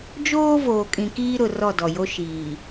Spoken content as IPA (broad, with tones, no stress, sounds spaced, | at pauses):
d͡ʒ oː˦ v oː˨ kʼ ĩ˨ k iː˦ ɾ ʊ˨ r ɔ˦˨ d ɔ˨ j o˦ ʃ iː˨